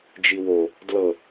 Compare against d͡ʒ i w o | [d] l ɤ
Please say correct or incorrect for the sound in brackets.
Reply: correct